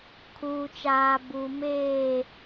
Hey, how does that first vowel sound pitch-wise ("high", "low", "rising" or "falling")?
low